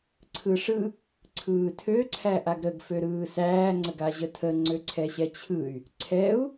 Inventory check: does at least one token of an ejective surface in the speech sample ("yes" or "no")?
no